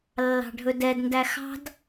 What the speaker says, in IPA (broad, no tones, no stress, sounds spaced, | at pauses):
lː ɑ̤ ɖʱ ɵ d ɛ d n d æ x ɑ̤ d